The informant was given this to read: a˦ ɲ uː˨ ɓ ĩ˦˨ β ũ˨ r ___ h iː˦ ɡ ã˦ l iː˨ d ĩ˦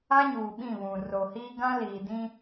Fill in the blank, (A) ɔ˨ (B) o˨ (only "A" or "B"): B